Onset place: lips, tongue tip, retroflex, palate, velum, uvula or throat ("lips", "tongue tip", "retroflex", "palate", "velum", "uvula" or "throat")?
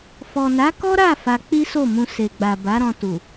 lips